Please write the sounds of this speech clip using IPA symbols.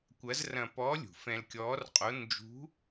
kʷɐ˧˥zrɐ̃˧pɔ˧˥lʲṳ˩ fɛ̃˧lkʲɔː˧˥rqʼo˧˥ nd͡ʒṳ˧˥

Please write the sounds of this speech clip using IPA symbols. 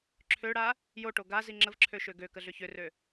ǁʰøɽa | joʈo ɡazi ŋ͡ǁəvǁʰø ʃøɡøkə ɮʏçʏrø

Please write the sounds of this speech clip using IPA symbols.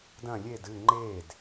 dɐ̃ lʲed ɨ ŋ͡ǃed

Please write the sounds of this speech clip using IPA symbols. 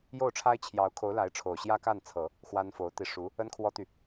jo˥˩ʊ̯ʈ͡ʂʰa˥ɪ̯t͡ɕʰjɑ˧˥ʊ̯kʰo˧˥ʊ̯ la˧˥ɪ̯ʈ͡ʂʰo˨˩ʊ̯ ɕjä˥ka˥˩nt͡sʰɤ˨˩˦ | xwa˥nfo˧˥ʊ̯t̪i˧ ʂu˧˥ | ə˥nkʰwɔ˥t̪y˨

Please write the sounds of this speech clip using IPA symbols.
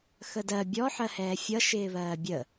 xədɜ bʲɔ ħɜhɛːfʲʌ ʃɪːβɜːbʲə

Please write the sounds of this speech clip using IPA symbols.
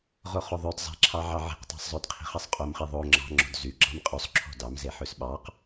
ʁoχoðˤød zˤɛ̤ǁʰɑ ʕɑʕi̤qtˤɑ̤sˤzˤød qʰi̤χɛsˤqʼomχi ðˤo ŋ͡ǁɑ̤ ŋ͡ǁo̤dzyɡ͡ǁɑm qʼʉsˤ ǁʰo̤dɑmzeħøs ɓɑq

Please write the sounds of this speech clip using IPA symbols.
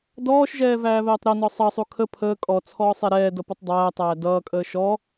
dɔːʃʒɛː væːβɛːtˤɾʌnɔ sˤʌsˤu kʰə pʰəː kʼɔ t͡sʰɔːsˤɛɾɛːdʌ putˤdˤæːtˤæː dʌːkʼəː ʃɔ

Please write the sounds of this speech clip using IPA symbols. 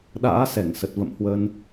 ɗa̰ː˧˥ sɛ˧˩ŋsə˨˩t̚və̰˧˨mhwə˧n

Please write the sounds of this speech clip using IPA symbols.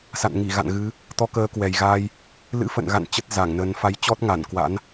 sa̰˧˨nŋi˧˩ɣa̰˧˨nɣɨ˨˦ | t̪ɔ˧kəː˨˦ kwɛ˨˩jɣaː˧j | lɨ̰˧˥fə̰˧˨nɣa̰˧˨n t͡ɕə˦˥t̚za˧˩ŋnəː˨˦n fa˨˦jt͡ɕɔ˦˥t̚ ŋa˧˩nkwa̰˧˥n

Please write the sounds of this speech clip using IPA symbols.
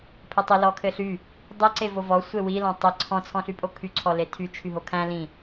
pʰɘtˤɘ lɔkʰɘɬy | dˤɘ ǀevovɔ sʷewi lɔ̃tˤɘ ǀʰɔ̃ t͡sʰɔ̃ɬypʼokʰy ǀʰɔletʰy t͡ʃʰyɦokʰæ̃ lĩ

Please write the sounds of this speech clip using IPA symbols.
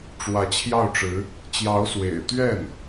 ʈ͡ʂwä˧˥t͡ɕʰjɑ˥˩ʊ̯ʈ͡ʂɻ̩˧˥ | t͡ɕjɑ˧˥ʊ̯swḛ˨˩ɪ̯t̪ɥɛ˥˩n

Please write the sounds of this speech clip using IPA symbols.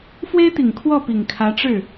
fwe˥ɪ̯t̪i˨˩ŋ kʰwɔ˥˩pi˨˩ŋ kʰä˧˥ʈ͡ʂɻ̩˥˩

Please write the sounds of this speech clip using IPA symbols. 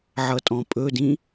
ʕʌtʼɔ̃pʼɵdĩ

